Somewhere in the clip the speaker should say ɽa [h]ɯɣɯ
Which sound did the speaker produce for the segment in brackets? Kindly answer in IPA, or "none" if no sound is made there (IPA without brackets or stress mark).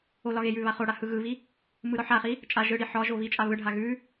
h